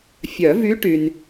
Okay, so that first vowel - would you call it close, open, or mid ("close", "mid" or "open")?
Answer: mid